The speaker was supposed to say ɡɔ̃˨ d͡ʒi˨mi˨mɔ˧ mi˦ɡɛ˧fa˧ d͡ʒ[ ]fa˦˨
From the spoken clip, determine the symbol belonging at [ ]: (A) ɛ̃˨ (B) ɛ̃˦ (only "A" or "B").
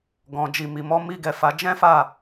B